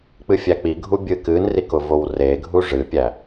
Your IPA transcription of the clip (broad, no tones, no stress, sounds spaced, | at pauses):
k͡p ɨ fʲ æ k͡p i ɡʱ u bʲ ɨ k ɨ n r i k ʊ v o w r e ɡʱ u ʐ ɨ pʲ æ